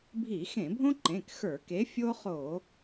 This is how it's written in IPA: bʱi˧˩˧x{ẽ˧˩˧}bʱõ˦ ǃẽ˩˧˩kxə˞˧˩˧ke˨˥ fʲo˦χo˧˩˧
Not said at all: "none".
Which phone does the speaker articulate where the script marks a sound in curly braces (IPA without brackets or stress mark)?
ẽ˧˩˧